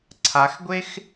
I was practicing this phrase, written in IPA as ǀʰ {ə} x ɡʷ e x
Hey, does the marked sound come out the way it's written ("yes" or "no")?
no